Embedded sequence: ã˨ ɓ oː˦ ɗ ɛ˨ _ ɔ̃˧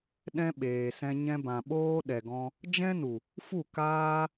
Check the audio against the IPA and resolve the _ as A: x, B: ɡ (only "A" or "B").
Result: B